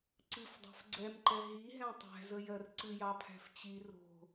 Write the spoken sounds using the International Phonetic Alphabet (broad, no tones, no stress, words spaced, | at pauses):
ǀɨfdˤæ̤f ɡ͡ǀɛmǃɛ ɦiɦɛ̃ tˤæ̤zəjɜr ǀɨjɑpʰæ̤f t͡ɕi ro̤